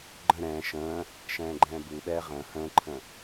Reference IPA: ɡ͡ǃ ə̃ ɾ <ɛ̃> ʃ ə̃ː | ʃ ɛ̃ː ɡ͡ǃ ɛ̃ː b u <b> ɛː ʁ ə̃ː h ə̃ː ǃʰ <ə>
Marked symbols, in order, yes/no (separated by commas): no, no, no